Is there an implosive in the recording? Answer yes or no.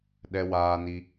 yes